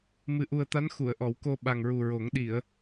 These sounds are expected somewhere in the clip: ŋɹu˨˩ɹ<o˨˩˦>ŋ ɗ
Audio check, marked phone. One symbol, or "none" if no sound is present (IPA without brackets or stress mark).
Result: o˨˩˦